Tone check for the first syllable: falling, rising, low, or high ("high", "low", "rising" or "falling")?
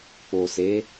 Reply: low